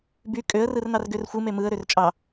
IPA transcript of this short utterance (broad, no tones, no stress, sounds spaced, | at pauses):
b y kʼ ø ə̯ r ɯ r n ɑ r ɡ ø r xʷ ɯ m e m ɯ ə̯ ɾ ø r t͡ʃʼ ɑ